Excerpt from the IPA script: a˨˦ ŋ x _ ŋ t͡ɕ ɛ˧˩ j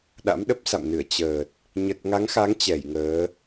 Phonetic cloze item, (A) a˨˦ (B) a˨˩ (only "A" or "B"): A